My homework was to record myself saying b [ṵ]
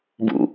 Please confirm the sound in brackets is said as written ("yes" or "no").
yes